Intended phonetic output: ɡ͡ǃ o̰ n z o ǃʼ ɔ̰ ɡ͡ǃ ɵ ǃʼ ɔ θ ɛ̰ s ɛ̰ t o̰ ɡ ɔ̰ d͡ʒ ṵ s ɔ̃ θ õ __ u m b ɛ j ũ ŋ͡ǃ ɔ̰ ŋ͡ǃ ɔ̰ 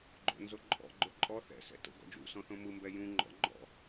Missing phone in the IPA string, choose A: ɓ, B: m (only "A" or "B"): B